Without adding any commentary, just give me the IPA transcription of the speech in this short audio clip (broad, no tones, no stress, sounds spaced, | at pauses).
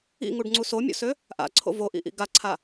ḭ ŋ u ɖ ŋ͡ǀ u s o mʲ o̰ s ø | ʔ a̰ ǀʰ o̰ v o ʔ ḭ ʔ ḭ ɡ a ǀʰ a